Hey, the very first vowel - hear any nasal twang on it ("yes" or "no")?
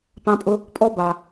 yes